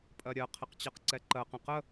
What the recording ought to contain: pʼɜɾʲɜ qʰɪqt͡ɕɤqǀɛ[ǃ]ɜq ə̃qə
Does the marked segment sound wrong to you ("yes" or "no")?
no